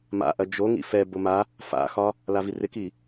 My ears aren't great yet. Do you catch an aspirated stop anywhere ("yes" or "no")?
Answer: no